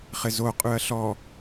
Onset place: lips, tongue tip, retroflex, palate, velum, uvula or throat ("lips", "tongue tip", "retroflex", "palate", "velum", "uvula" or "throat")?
uvula